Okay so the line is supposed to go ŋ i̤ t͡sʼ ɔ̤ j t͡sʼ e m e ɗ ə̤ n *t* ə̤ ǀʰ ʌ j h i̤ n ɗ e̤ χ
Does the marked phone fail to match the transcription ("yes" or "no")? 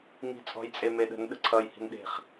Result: yes